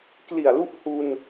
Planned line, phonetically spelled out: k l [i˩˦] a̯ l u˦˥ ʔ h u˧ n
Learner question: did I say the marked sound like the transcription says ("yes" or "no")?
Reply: no